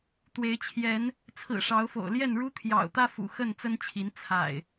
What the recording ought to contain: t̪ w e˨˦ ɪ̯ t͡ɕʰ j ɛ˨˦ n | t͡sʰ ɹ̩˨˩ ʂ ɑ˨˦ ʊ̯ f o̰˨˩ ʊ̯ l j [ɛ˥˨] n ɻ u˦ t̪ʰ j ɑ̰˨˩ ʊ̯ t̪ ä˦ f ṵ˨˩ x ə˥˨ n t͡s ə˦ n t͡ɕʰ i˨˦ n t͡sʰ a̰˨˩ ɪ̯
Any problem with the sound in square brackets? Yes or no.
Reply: no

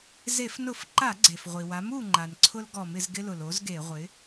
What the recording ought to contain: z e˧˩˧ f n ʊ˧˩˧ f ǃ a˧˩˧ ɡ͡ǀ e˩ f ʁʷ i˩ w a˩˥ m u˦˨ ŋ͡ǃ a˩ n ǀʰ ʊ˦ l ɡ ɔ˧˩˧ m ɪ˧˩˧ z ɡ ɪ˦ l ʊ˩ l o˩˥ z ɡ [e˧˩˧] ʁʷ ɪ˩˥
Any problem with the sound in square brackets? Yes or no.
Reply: no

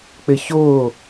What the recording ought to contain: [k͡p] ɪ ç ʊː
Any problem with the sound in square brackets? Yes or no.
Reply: no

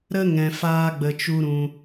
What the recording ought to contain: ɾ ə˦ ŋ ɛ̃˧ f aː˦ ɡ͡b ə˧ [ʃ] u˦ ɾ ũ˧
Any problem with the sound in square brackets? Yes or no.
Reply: yes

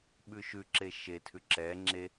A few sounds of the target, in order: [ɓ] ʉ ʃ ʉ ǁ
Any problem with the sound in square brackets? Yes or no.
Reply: no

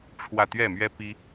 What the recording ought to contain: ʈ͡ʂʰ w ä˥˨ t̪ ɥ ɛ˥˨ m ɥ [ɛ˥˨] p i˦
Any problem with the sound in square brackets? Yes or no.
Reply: yes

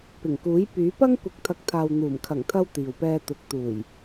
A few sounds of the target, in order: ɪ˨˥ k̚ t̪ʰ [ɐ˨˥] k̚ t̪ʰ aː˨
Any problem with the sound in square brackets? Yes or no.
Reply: no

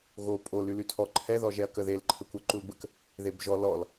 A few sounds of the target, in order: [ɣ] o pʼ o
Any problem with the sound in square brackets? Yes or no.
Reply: no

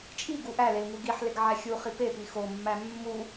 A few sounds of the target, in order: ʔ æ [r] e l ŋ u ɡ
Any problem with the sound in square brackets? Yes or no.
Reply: yes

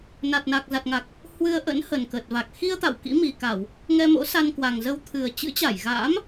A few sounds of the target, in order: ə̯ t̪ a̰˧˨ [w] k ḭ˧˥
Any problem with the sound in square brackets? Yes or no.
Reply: no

